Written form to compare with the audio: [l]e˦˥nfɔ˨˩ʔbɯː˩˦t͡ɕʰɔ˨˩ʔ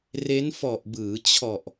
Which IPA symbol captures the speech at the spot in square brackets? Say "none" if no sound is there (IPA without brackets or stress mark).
r